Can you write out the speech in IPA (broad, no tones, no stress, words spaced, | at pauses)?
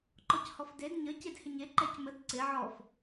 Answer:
ǃɔchɔfded ɲə cedhɪɲe ǃɛcməd ǀɪ ʕɔf